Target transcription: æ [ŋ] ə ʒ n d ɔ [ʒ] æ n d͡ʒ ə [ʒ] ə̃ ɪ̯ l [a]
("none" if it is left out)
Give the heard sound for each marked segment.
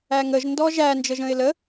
ŋ, ʒ, ʒ, ə

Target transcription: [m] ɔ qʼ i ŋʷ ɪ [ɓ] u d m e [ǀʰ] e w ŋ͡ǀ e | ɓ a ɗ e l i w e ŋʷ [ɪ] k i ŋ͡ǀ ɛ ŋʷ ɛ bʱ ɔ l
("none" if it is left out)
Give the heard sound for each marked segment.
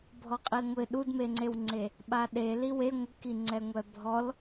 bʱ, ɗ, ŋ͡ǀ, ɪ

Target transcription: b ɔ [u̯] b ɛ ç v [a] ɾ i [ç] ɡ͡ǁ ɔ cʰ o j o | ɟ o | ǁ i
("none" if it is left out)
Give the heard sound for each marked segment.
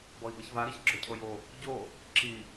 i̯, a, ç

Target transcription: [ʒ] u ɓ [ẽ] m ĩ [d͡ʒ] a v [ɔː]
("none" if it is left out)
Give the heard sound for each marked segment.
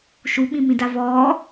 ʃ, ĩ, d, ɔː

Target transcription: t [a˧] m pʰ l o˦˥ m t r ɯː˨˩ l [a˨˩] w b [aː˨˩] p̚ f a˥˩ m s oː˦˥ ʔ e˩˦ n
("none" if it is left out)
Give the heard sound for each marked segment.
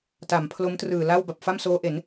a˩˦, a˥˩, a˨˩

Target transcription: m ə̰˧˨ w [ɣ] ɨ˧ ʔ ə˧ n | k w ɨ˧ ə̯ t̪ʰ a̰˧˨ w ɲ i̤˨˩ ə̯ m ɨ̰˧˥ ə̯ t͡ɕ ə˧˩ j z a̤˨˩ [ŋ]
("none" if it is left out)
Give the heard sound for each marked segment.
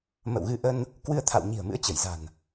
ɣ, n

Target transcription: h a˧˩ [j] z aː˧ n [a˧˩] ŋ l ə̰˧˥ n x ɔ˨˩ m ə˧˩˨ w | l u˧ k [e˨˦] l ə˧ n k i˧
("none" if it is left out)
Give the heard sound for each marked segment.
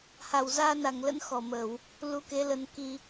w, a˧˩, e˨˦

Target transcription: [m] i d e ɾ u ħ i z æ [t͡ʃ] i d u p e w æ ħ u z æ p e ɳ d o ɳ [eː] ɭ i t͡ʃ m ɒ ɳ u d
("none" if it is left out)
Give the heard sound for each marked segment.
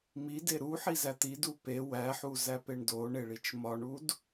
m, t̪, e

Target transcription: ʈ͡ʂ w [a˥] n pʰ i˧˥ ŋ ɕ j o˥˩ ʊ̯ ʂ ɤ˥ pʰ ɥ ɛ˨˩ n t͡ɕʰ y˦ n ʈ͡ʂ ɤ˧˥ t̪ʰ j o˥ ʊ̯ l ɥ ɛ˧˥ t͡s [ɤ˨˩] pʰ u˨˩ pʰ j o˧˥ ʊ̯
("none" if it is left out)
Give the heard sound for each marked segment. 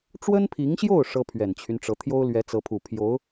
ə˥, ɤ˧˥

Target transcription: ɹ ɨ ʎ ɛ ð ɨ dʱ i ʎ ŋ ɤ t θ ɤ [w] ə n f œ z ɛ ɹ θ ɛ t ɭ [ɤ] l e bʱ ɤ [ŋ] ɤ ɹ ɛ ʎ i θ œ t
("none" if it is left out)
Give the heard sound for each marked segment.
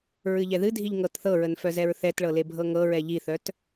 ɹ, ɤ, ŋ

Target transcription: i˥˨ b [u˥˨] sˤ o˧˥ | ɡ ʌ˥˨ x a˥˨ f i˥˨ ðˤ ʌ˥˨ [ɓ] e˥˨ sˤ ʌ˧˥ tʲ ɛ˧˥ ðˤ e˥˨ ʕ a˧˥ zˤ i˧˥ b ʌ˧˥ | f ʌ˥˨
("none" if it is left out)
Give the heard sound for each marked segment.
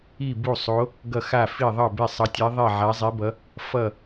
u˥˨, b

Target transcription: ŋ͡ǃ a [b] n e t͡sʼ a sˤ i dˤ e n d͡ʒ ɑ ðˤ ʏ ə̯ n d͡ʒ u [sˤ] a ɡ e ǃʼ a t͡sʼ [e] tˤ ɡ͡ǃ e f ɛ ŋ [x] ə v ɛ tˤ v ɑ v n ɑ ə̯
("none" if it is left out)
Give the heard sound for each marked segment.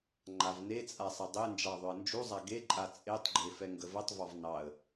v, zˤ, e, ɡ

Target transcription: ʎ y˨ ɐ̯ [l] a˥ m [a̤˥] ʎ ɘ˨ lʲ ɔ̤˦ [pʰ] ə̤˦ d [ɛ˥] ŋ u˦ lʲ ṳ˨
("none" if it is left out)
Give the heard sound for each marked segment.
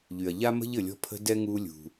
ʎ, ə̤˥, pʰ, ɛ˥

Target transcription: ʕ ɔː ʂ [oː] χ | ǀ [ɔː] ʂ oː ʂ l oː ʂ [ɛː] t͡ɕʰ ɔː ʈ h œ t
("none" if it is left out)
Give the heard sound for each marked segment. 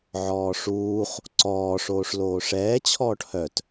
uː, ɔː, ɛː

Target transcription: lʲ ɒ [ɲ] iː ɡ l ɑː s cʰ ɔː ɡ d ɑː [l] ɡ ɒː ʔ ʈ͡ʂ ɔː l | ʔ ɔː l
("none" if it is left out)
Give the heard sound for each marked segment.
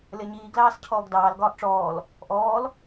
ɲ, l

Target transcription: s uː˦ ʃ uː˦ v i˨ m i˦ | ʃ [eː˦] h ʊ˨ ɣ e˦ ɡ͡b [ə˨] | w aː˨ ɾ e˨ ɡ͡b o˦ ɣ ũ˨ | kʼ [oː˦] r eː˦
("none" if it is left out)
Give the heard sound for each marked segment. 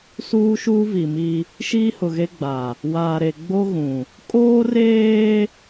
iː˦, a˨, oː˦

